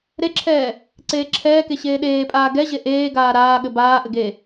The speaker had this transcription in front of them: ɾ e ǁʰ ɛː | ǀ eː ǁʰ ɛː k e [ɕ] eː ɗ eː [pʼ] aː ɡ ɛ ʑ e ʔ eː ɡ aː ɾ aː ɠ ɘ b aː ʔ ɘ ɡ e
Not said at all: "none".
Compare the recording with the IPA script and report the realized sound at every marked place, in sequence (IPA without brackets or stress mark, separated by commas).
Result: ɕ, pʼ